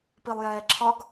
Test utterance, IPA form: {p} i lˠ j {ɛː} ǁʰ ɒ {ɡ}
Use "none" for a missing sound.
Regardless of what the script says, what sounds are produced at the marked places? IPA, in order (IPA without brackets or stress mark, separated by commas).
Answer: p, ɛː, ɡ